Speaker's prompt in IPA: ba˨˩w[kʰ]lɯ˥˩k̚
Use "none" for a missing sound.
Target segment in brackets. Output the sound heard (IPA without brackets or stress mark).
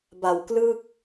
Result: k